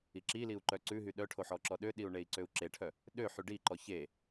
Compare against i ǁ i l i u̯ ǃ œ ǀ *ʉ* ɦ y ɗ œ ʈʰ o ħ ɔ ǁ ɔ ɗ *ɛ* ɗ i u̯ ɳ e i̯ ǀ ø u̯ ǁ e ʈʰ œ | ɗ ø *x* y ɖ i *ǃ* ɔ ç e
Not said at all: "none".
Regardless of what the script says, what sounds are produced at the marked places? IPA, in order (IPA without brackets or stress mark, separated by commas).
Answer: ʉ, ø, ħ, ǃ